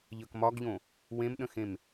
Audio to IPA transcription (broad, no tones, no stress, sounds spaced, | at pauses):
ʎ ə k m ɒ ɡ ʎ õ | w ẽ m ɗ ə̃ x ẽ m